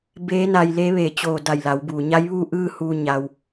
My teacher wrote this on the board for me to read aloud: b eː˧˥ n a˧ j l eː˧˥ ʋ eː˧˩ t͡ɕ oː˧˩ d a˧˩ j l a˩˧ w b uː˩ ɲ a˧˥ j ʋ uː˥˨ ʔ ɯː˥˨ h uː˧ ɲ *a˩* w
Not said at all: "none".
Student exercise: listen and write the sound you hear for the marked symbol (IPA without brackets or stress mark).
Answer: a˩